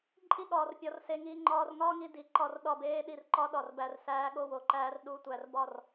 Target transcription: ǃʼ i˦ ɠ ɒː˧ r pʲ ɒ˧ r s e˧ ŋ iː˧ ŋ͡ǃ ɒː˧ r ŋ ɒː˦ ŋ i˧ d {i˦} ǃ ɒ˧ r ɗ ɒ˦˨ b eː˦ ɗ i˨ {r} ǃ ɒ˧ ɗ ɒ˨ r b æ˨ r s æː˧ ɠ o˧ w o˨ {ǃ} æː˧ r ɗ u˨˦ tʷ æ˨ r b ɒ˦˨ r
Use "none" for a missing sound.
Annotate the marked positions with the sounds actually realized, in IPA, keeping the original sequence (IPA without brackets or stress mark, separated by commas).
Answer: i˨, r, ǃ